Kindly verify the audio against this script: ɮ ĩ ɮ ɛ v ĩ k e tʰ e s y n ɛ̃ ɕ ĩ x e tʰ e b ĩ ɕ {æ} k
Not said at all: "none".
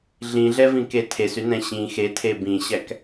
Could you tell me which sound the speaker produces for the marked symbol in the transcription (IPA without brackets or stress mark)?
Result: æ